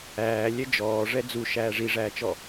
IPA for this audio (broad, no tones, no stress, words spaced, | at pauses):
æːlʲɛ d͡ʒɔːʐɛ d͡zuʃæː ʐiʐæːt͡ʃɔ